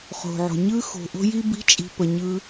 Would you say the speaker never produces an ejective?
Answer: no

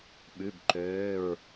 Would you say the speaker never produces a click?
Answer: no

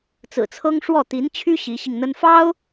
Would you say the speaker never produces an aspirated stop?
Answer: no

